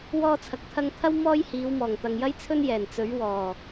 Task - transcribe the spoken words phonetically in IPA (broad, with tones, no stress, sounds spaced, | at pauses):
w ɔː˧ t͡sʰ ɐ˨ k̚ t̪ʰ ɐ˧ ŋ t̪ʰ ɐ˥ w m ɔː˥ j h iː˨˧ w m ɔː˨˩ ŋ t̪ ɐ˨ ŋ j ɐ˥ j t͡sʰ ɵ˥ n j ɛː˨˩ n t͡s ɵ˨˥ ɥ w ɔː˨˩